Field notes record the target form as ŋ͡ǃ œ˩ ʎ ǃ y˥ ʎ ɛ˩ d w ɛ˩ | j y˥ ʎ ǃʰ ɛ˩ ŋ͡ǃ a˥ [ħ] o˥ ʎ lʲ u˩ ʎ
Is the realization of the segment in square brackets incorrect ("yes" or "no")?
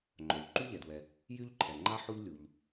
no